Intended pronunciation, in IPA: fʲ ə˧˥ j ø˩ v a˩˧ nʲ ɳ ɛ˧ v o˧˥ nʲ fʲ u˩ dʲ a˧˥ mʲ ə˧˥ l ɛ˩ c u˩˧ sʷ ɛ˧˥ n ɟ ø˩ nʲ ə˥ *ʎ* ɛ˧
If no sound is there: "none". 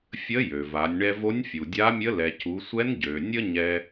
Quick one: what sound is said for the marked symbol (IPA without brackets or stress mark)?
ɲ